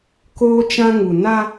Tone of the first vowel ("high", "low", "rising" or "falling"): high